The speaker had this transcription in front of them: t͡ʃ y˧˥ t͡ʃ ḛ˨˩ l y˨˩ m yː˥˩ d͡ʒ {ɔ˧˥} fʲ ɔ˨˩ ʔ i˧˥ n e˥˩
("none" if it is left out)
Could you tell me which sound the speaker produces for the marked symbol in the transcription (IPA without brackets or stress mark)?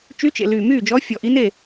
ɔ˧˥